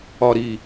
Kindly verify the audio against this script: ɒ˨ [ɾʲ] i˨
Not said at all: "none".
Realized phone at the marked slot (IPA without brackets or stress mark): ɾ